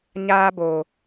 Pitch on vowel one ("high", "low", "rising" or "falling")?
high